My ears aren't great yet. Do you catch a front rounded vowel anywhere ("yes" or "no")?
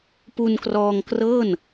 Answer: no